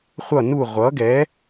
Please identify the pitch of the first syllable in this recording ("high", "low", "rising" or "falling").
falling